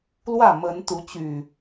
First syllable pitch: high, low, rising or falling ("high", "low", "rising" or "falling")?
falling